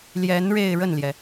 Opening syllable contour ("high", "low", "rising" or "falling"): rising